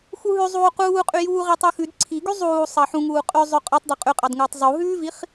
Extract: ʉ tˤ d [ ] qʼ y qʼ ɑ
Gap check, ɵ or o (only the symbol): ɵ